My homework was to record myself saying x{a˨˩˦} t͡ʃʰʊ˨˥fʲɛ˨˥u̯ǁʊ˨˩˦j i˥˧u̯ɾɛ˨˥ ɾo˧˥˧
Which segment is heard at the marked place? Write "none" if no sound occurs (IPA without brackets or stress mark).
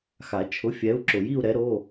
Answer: a˨˩˦